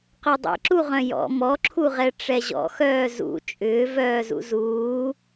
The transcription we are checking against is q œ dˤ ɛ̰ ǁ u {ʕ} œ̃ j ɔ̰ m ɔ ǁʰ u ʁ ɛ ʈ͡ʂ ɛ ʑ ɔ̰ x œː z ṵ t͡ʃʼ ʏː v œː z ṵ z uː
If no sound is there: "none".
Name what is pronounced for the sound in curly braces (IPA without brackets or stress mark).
ʁ